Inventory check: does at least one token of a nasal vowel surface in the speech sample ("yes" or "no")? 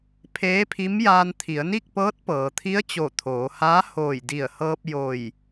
no